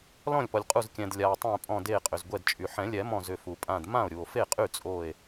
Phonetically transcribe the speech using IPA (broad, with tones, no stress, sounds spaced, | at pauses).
l ɔ̃˥˩ lʲ p ɔ˩ lʲ qʼ u˧˩ z kʲ ɛ̃˩ d lʲ a˩ o̯ tˤ ẽ˧˩ pʼ ɔ̃˧˩ d e˧˩ qʼ ʏ˩ z ɡʷ ɛ˧˩ d t͡ʃʼ y˩ ħ ɛ̃˨˩˦ lʲ ɛ˨˩˦ m ɔ̃˧˩ z ʏ˧˩ f u˩ pʼ ã˧˩ d m ã˥˩ o̯ ɾʲ u˩ o̯ f e˥˩ qʼ y˥˩ t͡sʼ o˧˩ e̯